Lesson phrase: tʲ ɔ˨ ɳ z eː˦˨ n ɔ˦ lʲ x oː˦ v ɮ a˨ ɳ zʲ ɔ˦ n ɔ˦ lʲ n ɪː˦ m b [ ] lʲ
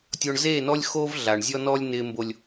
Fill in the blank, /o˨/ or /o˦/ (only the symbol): o˦